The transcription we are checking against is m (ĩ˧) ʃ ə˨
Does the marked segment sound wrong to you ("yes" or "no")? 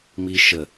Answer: yes